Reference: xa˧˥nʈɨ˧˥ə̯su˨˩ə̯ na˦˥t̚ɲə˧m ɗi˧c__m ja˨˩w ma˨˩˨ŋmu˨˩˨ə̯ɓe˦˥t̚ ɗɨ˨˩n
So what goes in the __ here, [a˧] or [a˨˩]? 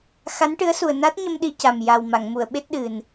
a˨˩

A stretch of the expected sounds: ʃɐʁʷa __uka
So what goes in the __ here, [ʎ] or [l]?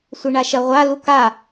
l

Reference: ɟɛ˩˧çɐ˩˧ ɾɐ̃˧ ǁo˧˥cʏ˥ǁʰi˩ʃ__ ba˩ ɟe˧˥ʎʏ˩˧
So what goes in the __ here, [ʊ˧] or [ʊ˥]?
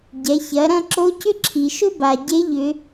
ʊ˥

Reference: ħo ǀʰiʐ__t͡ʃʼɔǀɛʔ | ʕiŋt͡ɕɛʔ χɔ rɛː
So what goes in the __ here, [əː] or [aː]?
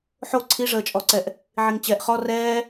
əː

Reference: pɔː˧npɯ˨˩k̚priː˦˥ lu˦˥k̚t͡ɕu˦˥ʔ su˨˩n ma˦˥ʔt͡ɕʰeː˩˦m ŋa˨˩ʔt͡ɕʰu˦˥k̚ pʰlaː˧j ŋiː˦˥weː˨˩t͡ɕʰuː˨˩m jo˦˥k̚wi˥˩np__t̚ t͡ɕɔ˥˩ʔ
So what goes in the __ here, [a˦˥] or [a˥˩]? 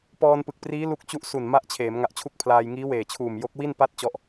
a˥˩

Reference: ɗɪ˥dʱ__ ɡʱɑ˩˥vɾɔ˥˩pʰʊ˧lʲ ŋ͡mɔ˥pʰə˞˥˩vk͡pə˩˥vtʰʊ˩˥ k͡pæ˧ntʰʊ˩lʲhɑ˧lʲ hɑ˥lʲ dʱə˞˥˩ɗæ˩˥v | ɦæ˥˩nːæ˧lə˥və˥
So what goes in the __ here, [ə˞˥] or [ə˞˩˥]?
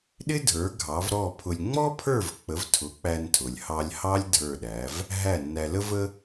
ə˞˩˥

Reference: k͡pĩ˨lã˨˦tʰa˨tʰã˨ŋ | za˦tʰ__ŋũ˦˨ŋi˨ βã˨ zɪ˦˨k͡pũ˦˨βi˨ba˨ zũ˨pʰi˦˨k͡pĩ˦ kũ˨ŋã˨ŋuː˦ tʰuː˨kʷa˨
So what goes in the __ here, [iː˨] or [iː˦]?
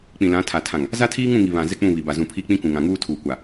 iː˦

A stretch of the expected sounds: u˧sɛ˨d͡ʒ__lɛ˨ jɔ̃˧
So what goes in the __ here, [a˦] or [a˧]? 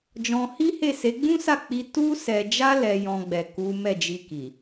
a˧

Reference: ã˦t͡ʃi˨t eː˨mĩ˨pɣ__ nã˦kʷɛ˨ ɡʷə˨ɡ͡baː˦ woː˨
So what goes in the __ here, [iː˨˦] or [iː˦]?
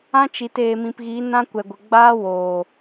iː˨˦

